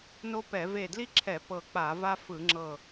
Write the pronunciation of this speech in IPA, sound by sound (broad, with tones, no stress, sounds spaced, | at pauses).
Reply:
n o˥ p ɛ˧˩˧ v e˧˩ d l i˥ ǁʰ ɛ˧˩˧ p ɤ˧˩ k͡p a˧˩˧ v a˥ f ɯ˧˩˧ ŋ͡ǁ ɤ˧˩